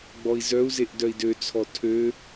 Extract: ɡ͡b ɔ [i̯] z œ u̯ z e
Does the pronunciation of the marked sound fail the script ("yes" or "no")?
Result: no